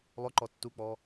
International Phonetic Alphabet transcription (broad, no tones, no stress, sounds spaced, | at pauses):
lˠ ʊ ǃ ɔ tː u k͡p ɔ